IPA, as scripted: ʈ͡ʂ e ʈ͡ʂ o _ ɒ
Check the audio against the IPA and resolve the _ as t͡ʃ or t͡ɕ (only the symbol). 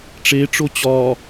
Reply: t͡ɕ